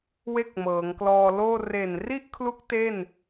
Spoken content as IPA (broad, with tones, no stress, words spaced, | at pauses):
we˥˩k̚mɤː˩˦ŋklɔː˧loː˥˩ re˨˩nri˥˩ʔkʰlu˦˥k̚ te˥˩n